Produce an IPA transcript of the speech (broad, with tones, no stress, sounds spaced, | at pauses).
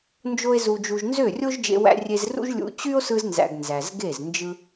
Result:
n d͡ʒ o˦ e̯ z u˧ d͡ʒ u˧ ʒ n z ø˦˨ rʲ o˦ ʒ d͡ʒ ḛ˧ w æ̰˧ rʲ e˧ z r ṵ˦ ʒ lʲ ṵ˧ t͡ɕ y˦ o̯ s ɯ˧ z n z æ̰˨ ɡ n z æ˨ z ɡ e˦˨ z n d͡ʒ ɯ˧